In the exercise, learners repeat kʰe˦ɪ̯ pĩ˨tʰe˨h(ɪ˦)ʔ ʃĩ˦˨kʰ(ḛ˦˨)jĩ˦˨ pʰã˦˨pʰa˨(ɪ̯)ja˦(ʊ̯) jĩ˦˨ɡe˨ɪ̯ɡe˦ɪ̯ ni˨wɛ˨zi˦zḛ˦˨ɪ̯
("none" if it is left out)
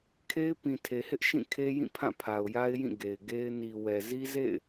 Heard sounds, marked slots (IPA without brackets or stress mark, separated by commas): ɪ˦, e˦, ʊ̯, ɪ̯